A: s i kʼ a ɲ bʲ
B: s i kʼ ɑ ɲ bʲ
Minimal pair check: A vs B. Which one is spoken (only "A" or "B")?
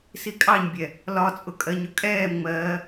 B